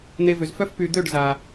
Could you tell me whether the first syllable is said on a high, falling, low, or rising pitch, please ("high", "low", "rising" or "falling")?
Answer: low